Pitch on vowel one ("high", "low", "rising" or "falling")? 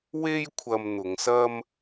high